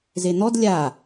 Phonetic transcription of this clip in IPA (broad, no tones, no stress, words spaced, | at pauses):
zen̪ɔd lʲa